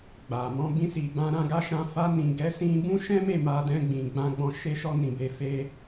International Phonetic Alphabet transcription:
ɡ͡b a˨ m ɔ̃˧ b ĩ˧ s i˨ b ã˧ ɾ ã˧ ɡ a˧ ʃ ã˧ f a˧ n ĩ˨ ɡ ɛ˨˦ s ĩ˧ b ũ˦ ʃ ɛ̃˦ m e˦˨ m a˧ d ɛ̃˧ ɡ͡b ĩ˨ ɡ͡b ã˧ ɡ͡b ɔ̃˧ ʃ e˧ ʃ ɔ˧ n ĩ˨ b e˨˦ f e˧

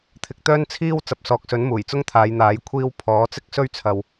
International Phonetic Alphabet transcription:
t̪ʰ ɪ˨ k̚ t̪ œː˥ n t͡sʰ iː˥ w t͡s ɐ˨ p̚ s ɔː˨ k̚ s ɵ˨˥ n m uː˨˩ j t͡s ʊ˥ ŋ t̪ʰ aː˨˧ j n̪ aː˨˥ j kʷʰ iː˧ w pʰ ɔː˨˥ t͡s ɪ˥ k̚ s ɵ˥ ɥ t͡sʰ ɐ˨ w

